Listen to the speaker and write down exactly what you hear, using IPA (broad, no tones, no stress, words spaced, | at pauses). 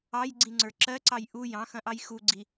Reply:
ɑjɡ͡ǀĩŋ͡ǀə˞ ǁɜǀɑj ʔu jɑ̃xɐ̃ʔɑj xuɡ͡ǀi